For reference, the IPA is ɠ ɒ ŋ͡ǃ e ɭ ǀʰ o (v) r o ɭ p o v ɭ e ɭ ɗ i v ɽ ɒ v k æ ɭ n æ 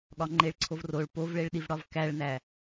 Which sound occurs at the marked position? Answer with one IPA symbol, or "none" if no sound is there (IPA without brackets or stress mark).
v